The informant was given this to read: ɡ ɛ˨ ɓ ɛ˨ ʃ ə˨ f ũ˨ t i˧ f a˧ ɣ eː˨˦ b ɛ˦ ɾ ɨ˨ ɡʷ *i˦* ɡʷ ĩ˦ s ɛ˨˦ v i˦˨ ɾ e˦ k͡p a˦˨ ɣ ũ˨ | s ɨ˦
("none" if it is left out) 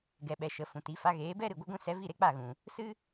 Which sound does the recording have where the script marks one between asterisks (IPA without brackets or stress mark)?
ɨ˦